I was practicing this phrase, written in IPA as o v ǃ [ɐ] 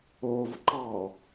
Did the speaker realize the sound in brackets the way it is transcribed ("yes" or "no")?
no